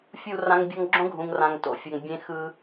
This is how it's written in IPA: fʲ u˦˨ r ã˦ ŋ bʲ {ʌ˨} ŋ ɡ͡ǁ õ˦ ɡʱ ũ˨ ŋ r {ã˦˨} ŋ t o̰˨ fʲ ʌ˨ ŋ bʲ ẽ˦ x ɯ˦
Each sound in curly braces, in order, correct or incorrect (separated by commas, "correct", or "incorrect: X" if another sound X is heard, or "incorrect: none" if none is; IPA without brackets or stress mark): incorrect: ʌ˦, incorrect: ã˨